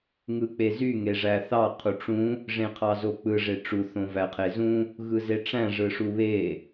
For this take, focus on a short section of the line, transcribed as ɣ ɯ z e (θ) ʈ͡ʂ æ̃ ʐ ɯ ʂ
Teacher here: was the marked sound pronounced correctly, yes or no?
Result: no